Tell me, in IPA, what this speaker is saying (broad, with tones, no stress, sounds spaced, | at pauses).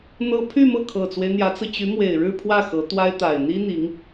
n̪ ɤ˥ pʰ y˥˧ m ɤ˥˩ kʰ ɤ˨˩ t͡s w e˦ ɪ̯ n̪ j ä˧˥ t͡s ɹ̩˧ t͡ɕ y˧˥ m w e˨˩ ɪ̯ ɻ ɻ̩˥˧ pʰ w ä˥˩ x ɤ˧˥ t̪ w a˥ ɪ̯ t̪ a˨˩ ɪ̯ n̪ i˥ n̪ i˧˥ ŋ